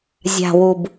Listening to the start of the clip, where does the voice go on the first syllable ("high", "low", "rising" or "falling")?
low